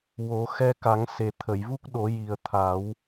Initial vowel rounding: rounded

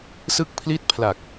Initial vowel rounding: unrounded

